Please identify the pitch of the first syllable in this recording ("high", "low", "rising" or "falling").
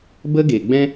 high